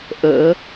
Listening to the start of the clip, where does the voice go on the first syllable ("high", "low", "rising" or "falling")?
rising